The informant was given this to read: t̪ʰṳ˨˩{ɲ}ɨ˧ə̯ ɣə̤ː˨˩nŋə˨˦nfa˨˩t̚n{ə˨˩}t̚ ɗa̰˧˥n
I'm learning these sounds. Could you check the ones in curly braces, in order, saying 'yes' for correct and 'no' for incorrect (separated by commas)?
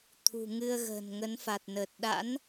no, no